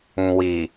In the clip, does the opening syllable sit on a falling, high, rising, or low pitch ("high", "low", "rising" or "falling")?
low